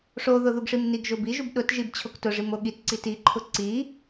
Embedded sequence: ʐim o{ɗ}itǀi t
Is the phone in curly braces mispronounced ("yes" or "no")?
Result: yes